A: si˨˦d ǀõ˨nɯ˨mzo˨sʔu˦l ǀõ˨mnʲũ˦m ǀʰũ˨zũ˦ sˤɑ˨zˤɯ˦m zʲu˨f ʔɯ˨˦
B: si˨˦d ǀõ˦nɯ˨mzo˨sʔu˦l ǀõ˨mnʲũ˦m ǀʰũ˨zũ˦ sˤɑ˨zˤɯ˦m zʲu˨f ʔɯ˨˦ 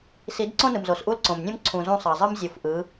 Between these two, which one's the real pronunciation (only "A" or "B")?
B